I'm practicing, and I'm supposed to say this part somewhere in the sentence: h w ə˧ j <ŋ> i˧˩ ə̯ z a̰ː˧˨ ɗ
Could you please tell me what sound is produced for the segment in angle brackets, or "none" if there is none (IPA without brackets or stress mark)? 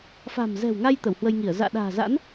ŋ